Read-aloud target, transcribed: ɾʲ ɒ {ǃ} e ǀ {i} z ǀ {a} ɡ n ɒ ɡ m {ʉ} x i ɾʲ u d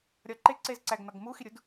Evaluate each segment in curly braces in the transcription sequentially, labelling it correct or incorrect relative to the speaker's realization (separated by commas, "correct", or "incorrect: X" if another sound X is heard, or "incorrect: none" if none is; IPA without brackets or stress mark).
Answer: correct, incorrect: e, incorrect: æ, incorrect: u